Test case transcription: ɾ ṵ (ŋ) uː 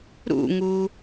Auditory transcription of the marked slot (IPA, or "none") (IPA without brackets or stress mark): ŋ